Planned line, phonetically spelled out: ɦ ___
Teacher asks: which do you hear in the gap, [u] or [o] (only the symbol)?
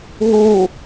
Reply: u